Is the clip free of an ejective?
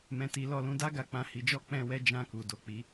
yes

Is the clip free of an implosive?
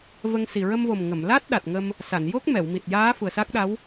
no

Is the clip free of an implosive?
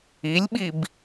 no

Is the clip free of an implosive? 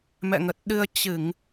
no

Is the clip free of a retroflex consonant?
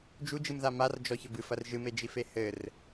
yes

